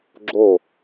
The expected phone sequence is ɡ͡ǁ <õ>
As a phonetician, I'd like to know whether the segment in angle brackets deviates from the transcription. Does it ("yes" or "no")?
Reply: yes